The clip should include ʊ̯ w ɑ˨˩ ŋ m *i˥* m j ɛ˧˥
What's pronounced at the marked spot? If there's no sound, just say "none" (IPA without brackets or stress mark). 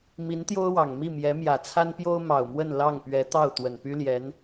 i˥˩